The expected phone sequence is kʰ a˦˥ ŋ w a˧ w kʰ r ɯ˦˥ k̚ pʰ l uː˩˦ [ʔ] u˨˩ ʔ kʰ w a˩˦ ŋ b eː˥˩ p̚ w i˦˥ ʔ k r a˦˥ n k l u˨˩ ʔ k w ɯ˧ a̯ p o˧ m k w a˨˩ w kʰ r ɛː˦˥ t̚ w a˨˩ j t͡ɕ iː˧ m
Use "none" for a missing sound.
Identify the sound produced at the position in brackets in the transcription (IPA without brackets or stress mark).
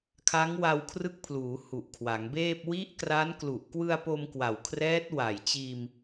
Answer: h